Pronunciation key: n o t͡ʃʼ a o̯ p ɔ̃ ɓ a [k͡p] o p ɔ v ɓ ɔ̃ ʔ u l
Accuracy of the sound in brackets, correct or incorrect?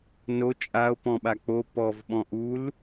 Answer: correct